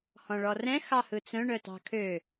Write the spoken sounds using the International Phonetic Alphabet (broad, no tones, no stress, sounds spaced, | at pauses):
h ɔ̃ ɭ ɔ r ɛ̃ x ɑ h ɯ t͡s œ̃ ɳ œ t ɑ̤ kʰ ø